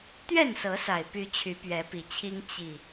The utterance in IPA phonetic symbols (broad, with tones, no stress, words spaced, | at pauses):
t̪ɥɛ˥˨nsɤ˨˦sa˨˩ɪ̯py˨˦ t͡ɕʰy˨˦pɥɛ˨˦pi˨˩t͡ɕʰi˦ŋ t͡ɕi˨˩